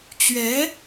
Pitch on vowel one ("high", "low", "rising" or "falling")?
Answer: rising